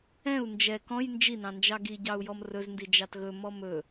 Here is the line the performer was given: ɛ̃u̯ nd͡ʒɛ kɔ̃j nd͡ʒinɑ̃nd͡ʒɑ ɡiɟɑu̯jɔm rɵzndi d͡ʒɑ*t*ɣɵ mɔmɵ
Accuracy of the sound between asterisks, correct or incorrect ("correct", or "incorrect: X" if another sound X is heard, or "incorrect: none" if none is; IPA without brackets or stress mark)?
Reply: correct